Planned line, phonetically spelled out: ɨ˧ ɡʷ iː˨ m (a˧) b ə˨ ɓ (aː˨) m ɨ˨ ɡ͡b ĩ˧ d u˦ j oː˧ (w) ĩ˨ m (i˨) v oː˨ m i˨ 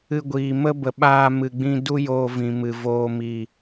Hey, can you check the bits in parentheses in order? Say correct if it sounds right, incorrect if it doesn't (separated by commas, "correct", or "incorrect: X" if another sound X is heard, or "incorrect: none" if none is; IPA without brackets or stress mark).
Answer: incorrect: ə˧, incorrect: aː˧, incorrect: v, incorrect: ɨ˨